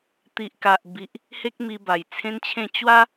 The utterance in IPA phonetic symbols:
t̪i˨ʔka˨ʔbi˨ʔ | he˦k̚mi˧ ba˨˩jt͡sʰẽ˦nt͡ɕʰẽ˥˧ t͡ɕwa˦

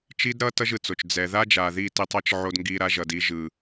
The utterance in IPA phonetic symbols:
t͡ʃi˦dɾʌ˦ tʌ˦ʒɯ˨t͡so˨t͡ʃ d͡zɛ˨ ða˦d͡ʒa˨ði˦˨ ti˦tˤʌ˦t͡ʃʕo˦d ŋɡi˦ɾa˦ʒʌ˨d i˦ʒɯ˨

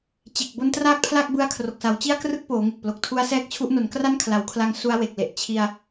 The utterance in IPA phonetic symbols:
t͡ɕe˨˩k̚bo˧n traː˥˩k̚pʰla˥˩k̚ bɯ˦˥a̯kʰro˨˩k̚sa˩˦w t͡ɕi˥˩a̯krɯ˥˩k̚ poː˩˦ŋe˨˩k̚ plo˨˩k̚tʰu˦˥a̯sɛː˦˥k̚t͡ɕʰu˦˥ʔ no˩˦nkra˥˩nkʰla˩˦wkʰla˧ŋ su˦˥a̯we˨˩k̚le˨˩ʔ t͡ɕʰi˧a̯

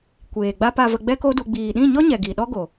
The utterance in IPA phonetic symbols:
kʷeː˨ɡ͡ba˦ pa˨və˨ ɡ͡bɛ˦ko˦du˧ ɡ͡biː˨ɗĩ˦˨ɲɔ˦ɲɛ˨ ɡi˨ɗɔ˦ɡo˨

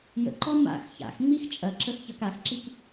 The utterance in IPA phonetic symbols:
jə̰ǃɔ ma̰x ça̰xŋ͡mix t͡ʃʼɐǁəxçɐk axǁik

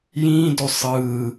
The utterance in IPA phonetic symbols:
jĩːdo sˤɯː

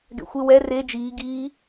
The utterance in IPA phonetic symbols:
ɡɛ̰xʷɪ wɛ re d͡ʒiː ɡiː

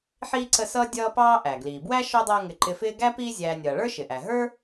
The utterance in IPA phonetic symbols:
ħiː˥ǀə˦sʌː˥ dʲʌː˦ pɑː˥ ʔæ˩ ɡliː˩bwæ˥ ʃɔ˥dˤʌː˦ŋɪ˨ ǃɪ˨fɪː˦ɡæ˥ piː˦zʲæː˨nʲʌː˩ɭə˞˥ ʃɪ˩ʔæ˩ɦə˞˥

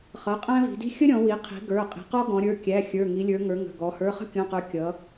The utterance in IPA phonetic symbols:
χʌ˩˧˩qʼæ̃˦vi̤˩˧di̤˦ xʲə˦ɾʲɔ̃˩˧wi˩˧qʰi̤˩˧ ɡə˞˩˧˩qʼi̤˩˧qɔ˦ ɡɔ̃˩˧ɾʲə˞˩˧˩kʲæ˩˧˩ xʲə˞˩˧˩ŋi˩˧lʲə˞˩˧ŋə˞˩˧ ŋə̤˩˧˩ɡɔ˩˧ hə˞˩˧˩χə̤˦kʲɔ̃˩˧˩qə˞˩˧ kʲʌ˩˧

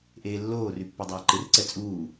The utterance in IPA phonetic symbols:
ʔeːlːoːr ypːɔdˤaːǃɪr ǀɛt͡sʼuː

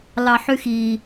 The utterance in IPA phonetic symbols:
lɑħyxi

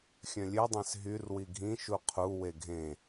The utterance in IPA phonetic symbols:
xʲœ̃lʲødˤẽs ɦyrwi ɡʱĩʃu qʰuwe ɡʱẽ

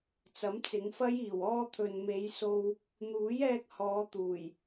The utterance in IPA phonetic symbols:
t͡sɐ˨˥mt͡sɪ˨˧ŋfɐ˥j iː˨˩w ɔː˧ t̪ʰɵ˨nme˨˧jso˧w | n̪uː˨˥jɛː˧k̚hɔː˨˧ t̪uː˨˩j

